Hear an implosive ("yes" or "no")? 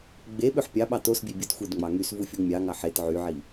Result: yes